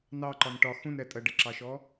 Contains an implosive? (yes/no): no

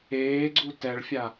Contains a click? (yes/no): yes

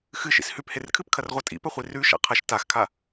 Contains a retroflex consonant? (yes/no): no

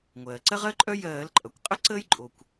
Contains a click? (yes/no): yes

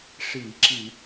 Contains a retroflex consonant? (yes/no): yes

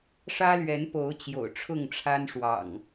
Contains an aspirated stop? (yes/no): yes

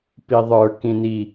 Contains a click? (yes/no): no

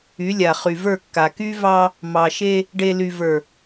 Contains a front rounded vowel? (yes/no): yes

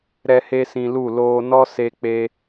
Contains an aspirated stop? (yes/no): no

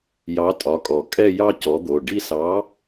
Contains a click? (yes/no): no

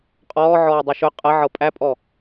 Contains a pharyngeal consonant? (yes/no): yes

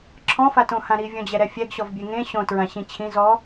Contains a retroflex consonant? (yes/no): no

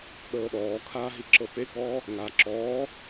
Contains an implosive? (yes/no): yes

